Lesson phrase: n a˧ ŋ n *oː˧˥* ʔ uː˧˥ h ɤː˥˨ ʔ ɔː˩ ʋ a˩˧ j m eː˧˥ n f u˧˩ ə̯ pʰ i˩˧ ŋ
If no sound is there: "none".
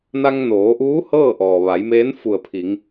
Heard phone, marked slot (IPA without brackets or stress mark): oː˩˧